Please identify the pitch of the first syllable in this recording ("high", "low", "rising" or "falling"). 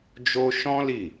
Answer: high